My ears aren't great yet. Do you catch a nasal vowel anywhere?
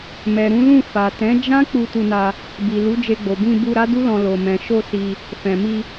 yes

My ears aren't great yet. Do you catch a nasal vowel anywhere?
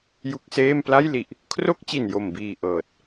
no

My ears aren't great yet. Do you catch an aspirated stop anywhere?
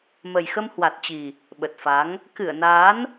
no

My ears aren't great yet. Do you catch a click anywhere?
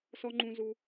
yes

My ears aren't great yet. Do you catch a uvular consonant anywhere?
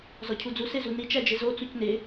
no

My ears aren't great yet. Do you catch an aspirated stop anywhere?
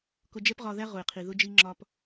yes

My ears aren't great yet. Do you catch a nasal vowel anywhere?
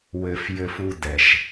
no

